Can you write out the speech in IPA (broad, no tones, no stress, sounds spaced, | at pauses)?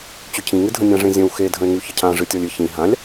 t͡ɕ ʏ cʰ ĩ ŋ ɨ dʱ ə̃ nʲ ã ʐ ẽ zʲ ə̃ w x e dʱ ə̃ e̯ ŋ y ç ə cʰ ã ʐ ɨ tʲ ɔ lʲ ɨ ç ĩ ɦ ã lʲ